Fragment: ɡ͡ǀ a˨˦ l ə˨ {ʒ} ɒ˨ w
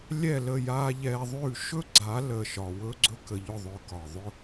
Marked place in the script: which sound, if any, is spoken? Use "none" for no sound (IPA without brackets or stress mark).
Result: ʃ